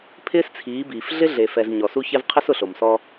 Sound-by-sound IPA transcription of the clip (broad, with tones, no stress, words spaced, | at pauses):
pʰɪː˦st͡sʰiː˨˦biː˨f ɮɪ˦ɮe˨fɛ˨z ɲɔ˨su˦çɛ˦v qʰɪ˦sʊ˨ɬo˨msɔ˦